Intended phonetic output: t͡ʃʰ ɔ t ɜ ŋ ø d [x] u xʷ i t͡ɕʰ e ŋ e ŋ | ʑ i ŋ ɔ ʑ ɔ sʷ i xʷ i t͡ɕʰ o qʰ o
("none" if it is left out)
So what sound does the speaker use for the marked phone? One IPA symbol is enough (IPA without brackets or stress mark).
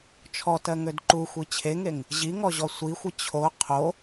ǃ